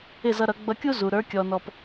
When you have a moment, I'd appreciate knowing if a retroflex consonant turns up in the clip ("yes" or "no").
no